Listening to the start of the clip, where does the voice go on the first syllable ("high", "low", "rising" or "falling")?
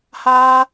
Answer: high